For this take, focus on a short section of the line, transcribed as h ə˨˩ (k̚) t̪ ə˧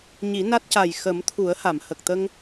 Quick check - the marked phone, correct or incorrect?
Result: correct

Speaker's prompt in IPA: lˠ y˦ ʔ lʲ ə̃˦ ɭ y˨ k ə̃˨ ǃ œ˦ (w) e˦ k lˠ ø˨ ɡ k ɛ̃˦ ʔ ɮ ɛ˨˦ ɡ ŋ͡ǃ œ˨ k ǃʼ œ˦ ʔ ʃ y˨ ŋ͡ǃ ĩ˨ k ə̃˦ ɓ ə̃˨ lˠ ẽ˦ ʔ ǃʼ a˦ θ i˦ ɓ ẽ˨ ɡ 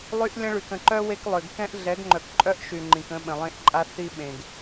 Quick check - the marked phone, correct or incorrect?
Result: correct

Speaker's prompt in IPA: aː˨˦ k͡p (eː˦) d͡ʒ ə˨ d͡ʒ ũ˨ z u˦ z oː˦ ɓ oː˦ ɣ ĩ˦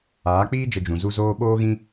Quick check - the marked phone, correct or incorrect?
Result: incorrect: iː˦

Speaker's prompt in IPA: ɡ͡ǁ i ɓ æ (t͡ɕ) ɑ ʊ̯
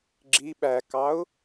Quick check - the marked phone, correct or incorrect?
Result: incorrect: k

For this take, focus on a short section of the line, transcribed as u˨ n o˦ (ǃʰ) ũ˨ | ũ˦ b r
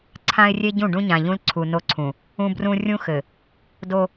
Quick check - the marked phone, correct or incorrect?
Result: incorrect: ǀʰ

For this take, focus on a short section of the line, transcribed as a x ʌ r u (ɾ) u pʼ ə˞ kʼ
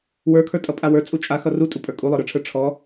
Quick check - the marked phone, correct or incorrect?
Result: incorrect: tʼ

